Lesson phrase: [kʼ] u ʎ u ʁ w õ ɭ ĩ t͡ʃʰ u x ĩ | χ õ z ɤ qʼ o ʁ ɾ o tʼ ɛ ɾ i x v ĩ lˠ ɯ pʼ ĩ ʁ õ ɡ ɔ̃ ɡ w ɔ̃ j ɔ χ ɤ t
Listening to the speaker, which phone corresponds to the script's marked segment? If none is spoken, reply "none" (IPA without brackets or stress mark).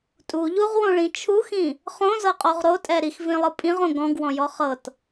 tʼ